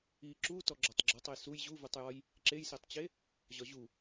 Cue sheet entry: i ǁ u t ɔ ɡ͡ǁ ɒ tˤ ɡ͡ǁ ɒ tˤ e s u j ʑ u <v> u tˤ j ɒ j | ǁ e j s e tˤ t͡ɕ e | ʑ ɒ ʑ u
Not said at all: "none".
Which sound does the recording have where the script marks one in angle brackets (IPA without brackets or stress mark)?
v